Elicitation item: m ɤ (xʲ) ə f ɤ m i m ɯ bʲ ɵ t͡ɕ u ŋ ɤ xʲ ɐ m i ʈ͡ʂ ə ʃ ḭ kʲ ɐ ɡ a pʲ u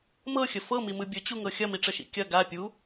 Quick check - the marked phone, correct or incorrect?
correct